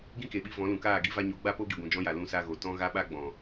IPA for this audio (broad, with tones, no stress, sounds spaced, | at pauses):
ɡ ĩ˦ k e˨ ɓ i˧ v ɔ̃˨˦ l ũ˨ k aː˦˨ ɡ i˦ v a˧ ɲ o˨˦ ɡ͡b a˦ p o˦ ɡ i˨ ɡʷ ũ˨ d͡ʒ ɔ̃˧ j a˨ l ũ˧ s a˧ ɣ o˨ t ɔ̃˦ ɣ a˦ ɓ a˦ ɡ͡b ɔ̃˨